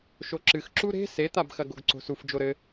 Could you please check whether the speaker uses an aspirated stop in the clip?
no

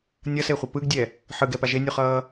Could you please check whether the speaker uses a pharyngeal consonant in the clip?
yes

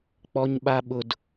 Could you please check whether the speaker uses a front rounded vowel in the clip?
no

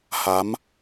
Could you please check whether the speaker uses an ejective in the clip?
no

